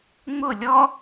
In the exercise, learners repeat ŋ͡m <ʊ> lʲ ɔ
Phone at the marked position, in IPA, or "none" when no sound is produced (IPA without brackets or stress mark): ʊ